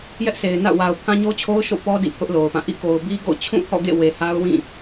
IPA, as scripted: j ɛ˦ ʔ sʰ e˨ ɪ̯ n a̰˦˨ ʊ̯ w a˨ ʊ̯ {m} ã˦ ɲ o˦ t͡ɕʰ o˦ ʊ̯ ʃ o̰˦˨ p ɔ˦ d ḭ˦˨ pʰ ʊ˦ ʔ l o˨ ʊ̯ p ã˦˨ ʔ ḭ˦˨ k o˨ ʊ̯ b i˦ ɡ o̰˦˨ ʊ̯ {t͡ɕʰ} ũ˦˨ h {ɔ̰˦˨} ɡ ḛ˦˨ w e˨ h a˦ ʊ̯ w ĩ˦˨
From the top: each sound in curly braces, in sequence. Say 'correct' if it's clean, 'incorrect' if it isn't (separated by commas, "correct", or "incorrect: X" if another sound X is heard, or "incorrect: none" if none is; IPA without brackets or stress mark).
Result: incorrect: pʰ, correct, correct